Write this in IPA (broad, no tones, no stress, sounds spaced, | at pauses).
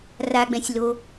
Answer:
r a ɡ͡b ɛ̃ sʲ l o